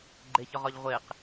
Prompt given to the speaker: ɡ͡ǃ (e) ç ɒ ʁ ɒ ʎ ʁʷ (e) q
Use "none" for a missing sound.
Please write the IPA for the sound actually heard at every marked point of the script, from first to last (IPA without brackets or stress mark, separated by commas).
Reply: e, e